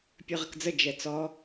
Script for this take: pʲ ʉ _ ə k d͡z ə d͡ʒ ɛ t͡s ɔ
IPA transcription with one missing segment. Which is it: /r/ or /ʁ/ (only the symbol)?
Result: ʁ